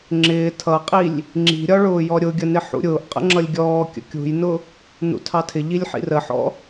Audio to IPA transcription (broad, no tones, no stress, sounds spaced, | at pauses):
ŋ͡ǁ ɪː tʰ ʌ qʼ i lʲ | ŋ͡ǁ i̤ ɾʲ ɒ ɭ ʊː j ɔ ɾʲ ʊ ɡʲ ə n ɪ ħ ṵ ɾʲ ʊː ʔ qʼ ə̰ ŋ͡ǁ ʌ lʲ ɡʲ ɔː kʲ ə̰ kʲ ṳ j n ʊ | n ṵ tʰ ɑ tʰ ɪ ʎ i lʲ ħ ḭ r ə ħ ɔ̰